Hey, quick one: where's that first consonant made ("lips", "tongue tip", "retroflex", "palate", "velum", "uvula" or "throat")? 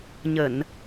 palate